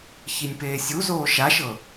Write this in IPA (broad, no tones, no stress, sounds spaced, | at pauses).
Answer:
ç i nʲ p eː sʲ u z oː ʃ a ʃ ɤ